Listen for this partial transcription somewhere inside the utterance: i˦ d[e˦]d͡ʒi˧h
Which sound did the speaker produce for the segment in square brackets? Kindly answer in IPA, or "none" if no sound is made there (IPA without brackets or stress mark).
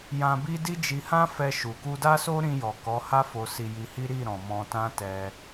i˦